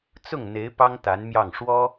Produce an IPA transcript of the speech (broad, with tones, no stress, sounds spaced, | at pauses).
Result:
t͡s ʊ˥˩ ŋ n̪ e˧˥ ɪ̯ p ɑ˥ ŋ t̪ a˧˥ n m j ɑ˥˩ ŋ ʂ w ɔ˥